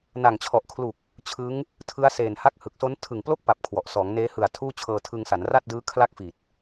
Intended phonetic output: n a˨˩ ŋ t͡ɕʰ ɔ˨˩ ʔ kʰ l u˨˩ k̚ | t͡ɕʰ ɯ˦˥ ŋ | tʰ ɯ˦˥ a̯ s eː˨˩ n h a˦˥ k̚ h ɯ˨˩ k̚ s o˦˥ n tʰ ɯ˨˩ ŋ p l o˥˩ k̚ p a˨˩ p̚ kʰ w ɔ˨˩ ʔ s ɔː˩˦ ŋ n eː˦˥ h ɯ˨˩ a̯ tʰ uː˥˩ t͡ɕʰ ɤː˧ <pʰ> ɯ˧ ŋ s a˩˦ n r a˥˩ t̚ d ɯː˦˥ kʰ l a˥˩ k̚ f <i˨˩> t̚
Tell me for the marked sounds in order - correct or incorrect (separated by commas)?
incorrect, correct